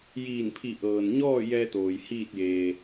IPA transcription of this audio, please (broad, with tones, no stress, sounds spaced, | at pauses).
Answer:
j iː˧˩ n pʰ i˧˩ ʔ ɤː˩ n ɲ ɔː˥˨ j ɛː˧ t̪ oː˩ j h iː˥˨ t̚ j eː˩